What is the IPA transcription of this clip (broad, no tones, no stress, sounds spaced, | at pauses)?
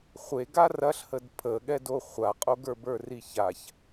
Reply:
χʷ e ɡ a r ɐ ɬ h ə d pʰ ə ɠ ɛ d o χʷ a qʼ o ɡ ə˞ b ə˞ r i ç a ç